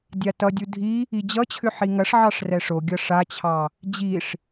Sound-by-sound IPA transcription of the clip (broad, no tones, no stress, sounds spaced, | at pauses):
dʲ a t ʌ dʲ u dʱ i | i d͡ʑ ʌ t͡ɕʰ ʏ ħ i ŋ ɐ ʂ ʕ ɑ ʂ r ɛ ʂ o ɡʲ ʌ ʂ a t͡ɕʰ ɑ | d͡ʑ i ʂ